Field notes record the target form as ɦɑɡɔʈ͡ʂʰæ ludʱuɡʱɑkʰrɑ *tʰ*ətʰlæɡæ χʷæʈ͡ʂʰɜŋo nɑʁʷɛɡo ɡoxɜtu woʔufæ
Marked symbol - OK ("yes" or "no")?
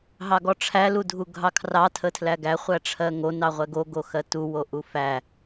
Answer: yes